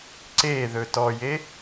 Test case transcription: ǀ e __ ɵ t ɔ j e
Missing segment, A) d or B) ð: B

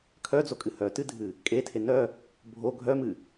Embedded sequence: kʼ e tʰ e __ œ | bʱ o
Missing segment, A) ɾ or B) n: B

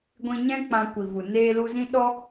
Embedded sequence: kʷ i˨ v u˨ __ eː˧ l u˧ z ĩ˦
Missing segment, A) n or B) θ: A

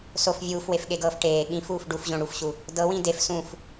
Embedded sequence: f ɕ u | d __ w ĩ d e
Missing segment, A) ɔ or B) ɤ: B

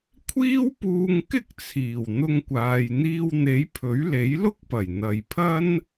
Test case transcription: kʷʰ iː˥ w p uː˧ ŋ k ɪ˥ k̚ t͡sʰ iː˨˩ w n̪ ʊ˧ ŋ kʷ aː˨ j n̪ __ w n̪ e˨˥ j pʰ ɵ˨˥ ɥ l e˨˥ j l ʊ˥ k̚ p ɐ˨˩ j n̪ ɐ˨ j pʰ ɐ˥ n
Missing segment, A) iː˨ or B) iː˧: B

